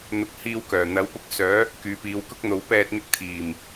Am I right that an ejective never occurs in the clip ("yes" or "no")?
yes